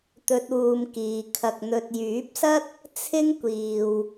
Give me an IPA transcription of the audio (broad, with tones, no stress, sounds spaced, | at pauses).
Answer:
t̪ ɵ˧ t̚ uː˨ m k iː˨ kʰ ɐ˨ k̚ n̪ ɵ˨ t̚ j yː˨˥ p̚ s ɐ˥ t̚ | t͡sʰ ɪ˥ ŋ kʷ iː˨ w